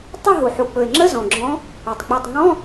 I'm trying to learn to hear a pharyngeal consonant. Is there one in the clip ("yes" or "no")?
yes